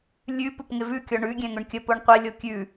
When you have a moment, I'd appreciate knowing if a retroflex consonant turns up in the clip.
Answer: yes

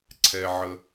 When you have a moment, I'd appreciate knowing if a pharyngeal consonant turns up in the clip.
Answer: yes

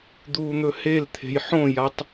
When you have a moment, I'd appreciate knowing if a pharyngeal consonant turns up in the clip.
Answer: yes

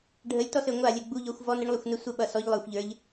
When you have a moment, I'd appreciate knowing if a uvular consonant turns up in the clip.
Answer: no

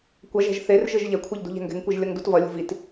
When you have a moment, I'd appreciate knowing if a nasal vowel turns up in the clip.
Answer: no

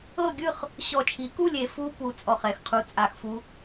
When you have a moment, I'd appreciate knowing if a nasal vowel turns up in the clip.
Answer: no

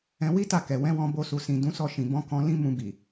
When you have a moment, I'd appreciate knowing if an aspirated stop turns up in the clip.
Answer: no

